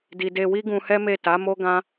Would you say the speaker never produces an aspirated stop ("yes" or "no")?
yes